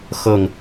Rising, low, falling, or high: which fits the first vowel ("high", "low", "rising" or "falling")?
falling